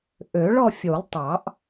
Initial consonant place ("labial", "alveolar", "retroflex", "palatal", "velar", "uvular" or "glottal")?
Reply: glottal